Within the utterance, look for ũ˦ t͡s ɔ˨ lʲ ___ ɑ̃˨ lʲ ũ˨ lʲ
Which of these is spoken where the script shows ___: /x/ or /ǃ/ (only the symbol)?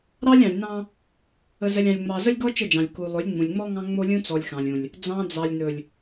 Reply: x